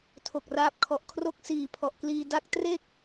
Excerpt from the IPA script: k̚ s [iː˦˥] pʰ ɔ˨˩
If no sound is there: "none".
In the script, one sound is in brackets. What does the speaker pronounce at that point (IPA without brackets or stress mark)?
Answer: iː˨˩